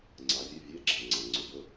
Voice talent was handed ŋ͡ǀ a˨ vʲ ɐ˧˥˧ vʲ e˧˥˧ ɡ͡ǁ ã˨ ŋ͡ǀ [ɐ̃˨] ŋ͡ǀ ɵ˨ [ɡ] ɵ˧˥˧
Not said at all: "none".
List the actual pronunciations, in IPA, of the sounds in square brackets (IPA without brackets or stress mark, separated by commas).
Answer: ã˨, ɡ